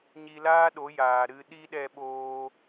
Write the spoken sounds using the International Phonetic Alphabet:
ɲ i˧ l aː˦ ɗ o˨˦ j aː˨ ɾ ɨ˧ ɗ i˦ ɗ ɛ˧ ɓ oː˧

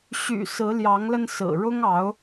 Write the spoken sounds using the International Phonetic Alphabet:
ɕ y̰˨˩ s ɹ̩˨˦ l j ɑ˨˦ ŋ l ə˧ n s ɹ̩˨˩ ɻ ʊ˦ ŋ ɑ˨˦ ʊ̯

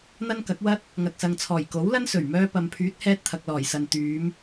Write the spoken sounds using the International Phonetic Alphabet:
n̪ ɐ˥ n k ɐ˨˥ k̚ w ɐ˥ t̚ | ŋ ɐ˨ k̚ s ɐ˨ ŋ t͡sʰ ɔː˨˩ j k o˨˥ w l ɐ˥ n s ɵ˨˩ ɥ m œː˧ p ɐ˨ m pʰ yː˨˥ t̚ h ɛː˧ t̚ t̪ʰ ɐ˨ k̚ l ɔː˨˩ j s ɐ˨ n t̪ yː˨˧ m

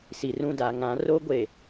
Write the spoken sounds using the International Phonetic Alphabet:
s i˨ r ũ˦˨ d a˨ ŋ ã˨˦ r o˦ ɡʷ e˨

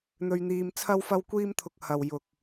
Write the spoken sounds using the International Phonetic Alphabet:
n̪ ɵ˧ ɥ n̪ iː˧ m t͡sʰ ɐ˥ w f ɐ˥ w kʷ iː˥ m t̪ʰ ʊ˧ k̚ h ɐ˨ w j ʊ˨ k̚

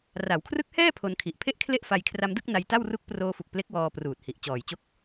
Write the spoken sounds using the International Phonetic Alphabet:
r a˩˦ w kʰ r ɯ˦˥ k̚ h ɛː˥˩ pʰ o˧ n kʰ i˨˩ ʔ pʰ e˥˩ ʔ kʰ l e˥˩ ʔ f a˧ j kʰ r a˧ m d ɯ˥˩ k̚ n a˧ j t a˥˩ w r u˦˥ k̚ p r oː˧ f u˨˩ k̚ p l e˦˥ k̚ w ɔː˧ p r uː˨˩ t̚ h i˨˩ ʔ t͡ɕ ɔː˨˩ j t͡ɕ o˦˥ k̚

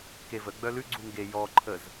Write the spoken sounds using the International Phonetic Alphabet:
k e v ə ɡ͡b œ l ʉ ɡ͡ǀ u ŋ ɡ e j ɔ ǃʰ ə z

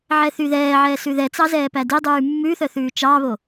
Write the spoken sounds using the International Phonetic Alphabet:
ʕ ɛ θ y ð ɛː ʕ ɛ s ʉ ð ɛ t͡s ɑ z ɛː p æ d i dˤ ʉː mː ʉ θ œ θ ʉː t͡ʃ ɑ β o

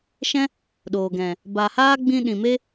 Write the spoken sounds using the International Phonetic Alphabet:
ʃ ɛ̃˦ | ɗ oː˨ ɡ ɛ̃˨ | b a˨ h aː˦ ɡ͡b ĩ˧ ɗ ĩ˨ m e˦

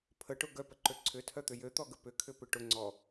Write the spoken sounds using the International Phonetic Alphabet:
pʰ ə ʈ ʊ ɡ œ p ə ǃ ø ǀʰ ʏ tʰ œ t̪ ʏ j ø t̪ ɔ ɡ ə p ʏ kʰ ʏ p ʏ ʈ ʊ ŋ͡ǀ ɔ

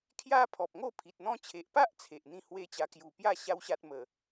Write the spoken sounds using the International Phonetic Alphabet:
kʰ j a˦ pʰ ɔ˨ p̚ ŋ o˥˧ pʰ i˨ t̚ n̪ ɔ̃˦ t͡ɕʰ e˨ ʔ p a˦ ʔ t͡sʰ e˨ ʔ n̪ ĩ˥˧ h w e˦ t͡ɕ a˧ k j u˨˩ p j a˥˧ ɕ a˦ w ɕ a˦ t̚ m ə˨˩

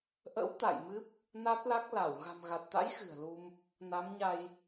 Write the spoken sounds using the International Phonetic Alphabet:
ʔ ə̰˧˥ w t̪ a̰˧˨ j m ɨ˦˥ p̚ | n a˦˥ t̚ l a˦˥ k̚ l a˧˩ w ɣ a̤˨˩ m ɣ a˨˩ t̚ t̪ a̰˧˥ j x ɨ̤˨˩ ə̯ l u˧ m | n a˨˦ m ɲ a˧ j

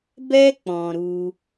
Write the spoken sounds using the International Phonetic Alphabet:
b ɛ˧ k͡p ɔ̃˨ ɾ u˧

